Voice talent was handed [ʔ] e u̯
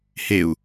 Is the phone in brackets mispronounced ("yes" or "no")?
yes